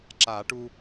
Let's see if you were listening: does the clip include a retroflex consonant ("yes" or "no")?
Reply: yes